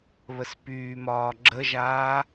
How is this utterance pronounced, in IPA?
βəspyːmɒː ɡ͡ǁəʒaː

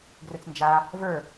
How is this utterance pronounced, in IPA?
ɡrɵt͡snd͡ʒa | və˞

